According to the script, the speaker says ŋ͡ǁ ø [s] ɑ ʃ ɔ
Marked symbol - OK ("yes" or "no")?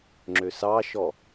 yes